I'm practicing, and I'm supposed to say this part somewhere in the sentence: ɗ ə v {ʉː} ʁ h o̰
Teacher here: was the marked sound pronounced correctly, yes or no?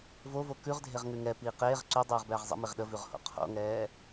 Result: no